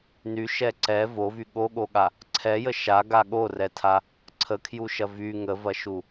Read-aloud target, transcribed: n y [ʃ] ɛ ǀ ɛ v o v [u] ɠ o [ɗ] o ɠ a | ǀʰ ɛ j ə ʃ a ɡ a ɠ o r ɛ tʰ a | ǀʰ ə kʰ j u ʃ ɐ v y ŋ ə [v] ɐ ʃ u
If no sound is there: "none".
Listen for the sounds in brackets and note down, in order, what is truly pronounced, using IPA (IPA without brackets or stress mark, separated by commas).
ʃ, y, ɠ, v